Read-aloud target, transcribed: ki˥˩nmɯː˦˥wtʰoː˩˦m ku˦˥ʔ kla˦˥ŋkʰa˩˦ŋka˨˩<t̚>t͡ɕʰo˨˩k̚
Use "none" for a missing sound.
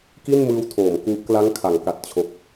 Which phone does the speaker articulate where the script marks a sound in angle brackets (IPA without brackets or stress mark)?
t̚